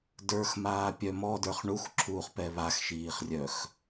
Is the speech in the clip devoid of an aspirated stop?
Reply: no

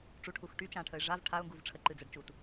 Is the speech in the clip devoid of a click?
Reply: no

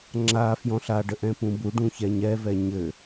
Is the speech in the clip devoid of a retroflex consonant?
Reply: no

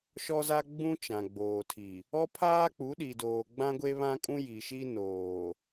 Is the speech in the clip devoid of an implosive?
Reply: no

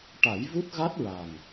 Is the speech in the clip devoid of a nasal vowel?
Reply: yes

